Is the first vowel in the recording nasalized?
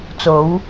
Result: no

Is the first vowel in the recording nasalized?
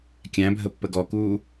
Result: yes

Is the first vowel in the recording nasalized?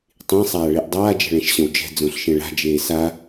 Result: yes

